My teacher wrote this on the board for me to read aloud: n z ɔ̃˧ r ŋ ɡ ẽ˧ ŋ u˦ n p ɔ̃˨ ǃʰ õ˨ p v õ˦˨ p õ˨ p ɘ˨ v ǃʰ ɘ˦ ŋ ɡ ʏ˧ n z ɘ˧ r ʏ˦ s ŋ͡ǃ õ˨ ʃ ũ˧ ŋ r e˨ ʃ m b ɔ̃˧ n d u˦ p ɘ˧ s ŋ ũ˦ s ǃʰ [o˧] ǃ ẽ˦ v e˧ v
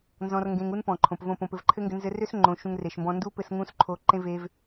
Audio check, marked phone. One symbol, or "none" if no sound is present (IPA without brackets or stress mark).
o˧